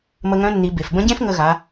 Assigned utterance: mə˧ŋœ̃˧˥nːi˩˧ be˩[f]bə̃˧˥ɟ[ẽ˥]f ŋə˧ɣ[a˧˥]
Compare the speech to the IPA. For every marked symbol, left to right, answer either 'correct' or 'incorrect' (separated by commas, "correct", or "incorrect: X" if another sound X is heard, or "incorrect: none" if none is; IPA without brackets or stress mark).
correct, correct, incorrect: a˩˧